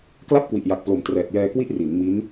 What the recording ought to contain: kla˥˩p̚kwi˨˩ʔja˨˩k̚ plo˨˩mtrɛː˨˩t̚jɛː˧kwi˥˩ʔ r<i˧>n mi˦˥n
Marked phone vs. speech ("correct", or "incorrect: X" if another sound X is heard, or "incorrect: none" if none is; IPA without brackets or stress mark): incorrect: i˩˦